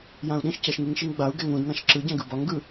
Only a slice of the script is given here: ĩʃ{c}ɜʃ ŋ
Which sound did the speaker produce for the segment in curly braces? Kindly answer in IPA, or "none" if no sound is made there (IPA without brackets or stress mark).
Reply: c